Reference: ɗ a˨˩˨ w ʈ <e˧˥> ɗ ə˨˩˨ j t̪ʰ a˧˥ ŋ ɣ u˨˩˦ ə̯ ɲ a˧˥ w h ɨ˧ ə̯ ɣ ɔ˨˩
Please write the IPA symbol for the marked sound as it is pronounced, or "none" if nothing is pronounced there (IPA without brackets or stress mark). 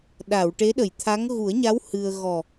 e˧˥